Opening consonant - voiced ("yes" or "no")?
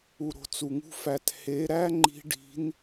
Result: yes